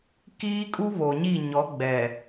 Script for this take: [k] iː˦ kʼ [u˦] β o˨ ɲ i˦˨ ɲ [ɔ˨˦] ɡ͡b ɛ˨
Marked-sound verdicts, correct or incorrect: correct, correct, correct

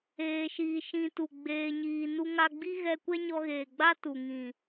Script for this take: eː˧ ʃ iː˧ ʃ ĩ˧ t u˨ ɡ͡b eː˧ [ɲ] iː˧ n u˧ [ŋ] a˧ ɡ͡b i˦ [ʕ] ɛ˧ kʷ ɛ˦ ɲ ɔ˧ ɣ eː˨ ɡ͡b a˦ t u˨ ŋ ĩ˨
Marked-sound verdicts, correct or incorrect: correct, correct, incorrect: ɣ

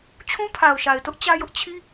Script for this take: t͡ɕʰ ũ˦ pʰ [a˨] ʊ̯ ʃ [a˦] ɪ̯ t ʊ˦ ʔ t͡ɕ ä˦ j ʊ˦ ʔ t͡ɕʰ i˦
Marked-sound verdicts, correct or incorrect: correct, incorrect: a˨

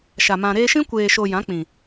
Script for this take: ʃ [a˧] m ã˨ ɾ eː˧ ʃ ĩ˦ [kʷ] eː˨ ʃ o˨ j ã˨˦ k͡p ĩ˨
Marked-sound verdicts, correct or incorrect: incorrect: a˨, correct

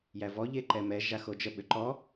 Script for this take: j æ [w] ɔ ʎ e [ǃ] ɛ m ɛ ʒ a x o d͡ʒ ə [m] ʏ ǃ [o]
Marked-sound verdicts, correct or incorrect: incorrect: v, correct, incorrect: ɓ, incorrect: ɔ

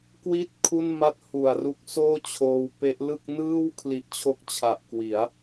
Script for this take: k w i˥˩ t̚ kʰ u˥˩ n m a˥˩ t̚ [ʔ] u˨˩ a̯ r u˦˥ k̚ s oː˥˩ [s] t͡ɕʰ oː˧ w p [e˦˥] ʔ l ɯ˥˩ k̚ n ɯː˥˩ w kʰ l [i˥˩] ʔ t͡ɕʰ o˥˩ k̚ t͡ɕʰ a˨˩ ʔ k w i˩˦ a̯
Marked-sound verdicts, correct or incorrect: incorrect: h, incorrect: none, correct, incorrect: i˦˥

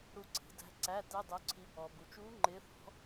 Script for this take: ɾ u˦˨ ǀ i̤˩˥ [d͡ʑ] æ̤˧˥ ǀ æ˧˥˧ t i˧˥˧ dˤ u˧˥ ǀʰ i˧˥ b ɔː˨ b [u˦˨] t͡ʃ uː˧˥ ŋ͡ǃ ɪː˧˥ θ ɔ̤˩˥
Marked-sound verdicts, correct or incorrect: incorrect: d, incorrect: u˨

